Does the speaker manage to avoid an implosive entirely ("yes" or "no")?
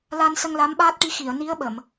no